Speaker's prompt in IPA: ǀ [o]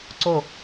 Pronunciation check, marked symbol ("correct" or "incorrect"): correct